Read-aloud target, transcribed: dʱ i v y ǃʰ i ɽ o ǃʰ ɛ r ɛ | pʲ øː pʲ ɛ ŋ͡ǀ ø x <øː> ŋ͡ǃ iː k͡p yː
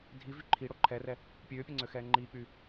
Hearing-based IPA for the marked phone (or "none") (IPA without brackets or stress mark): ɛː